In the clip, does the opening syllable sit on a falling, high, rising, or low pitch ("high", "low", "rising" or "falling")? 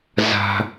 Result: high